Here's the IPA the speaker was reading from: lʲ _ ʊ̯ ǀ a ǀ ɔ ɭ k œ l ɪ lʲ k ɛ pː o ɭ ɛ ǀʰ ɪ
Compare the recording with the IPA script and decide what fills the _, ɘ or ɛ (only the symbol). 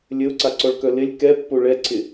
ɘ